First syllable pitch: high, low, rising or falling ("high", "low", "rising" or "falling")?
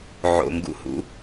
low